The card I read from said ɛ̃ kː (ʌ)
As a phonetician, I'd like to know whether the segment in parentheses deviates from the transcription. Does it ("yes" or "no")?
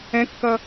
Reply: no